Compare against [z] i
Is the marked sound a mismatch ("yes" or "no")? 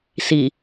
yes